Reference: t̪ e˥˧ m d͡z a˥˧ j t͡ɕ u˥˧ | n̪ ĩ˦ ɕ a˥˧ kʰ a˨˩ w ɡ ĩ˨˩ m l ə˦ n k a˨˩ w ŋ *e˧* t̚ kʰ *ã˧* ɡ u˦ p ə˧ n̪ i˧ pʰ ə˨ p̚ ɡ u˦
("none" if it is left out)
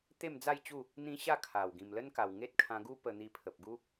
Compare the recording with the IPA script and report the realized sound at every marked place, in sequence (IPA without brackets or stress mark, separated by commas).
e˦, ã˧